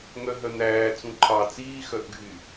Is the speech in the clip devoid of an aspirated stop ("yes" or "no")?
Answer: no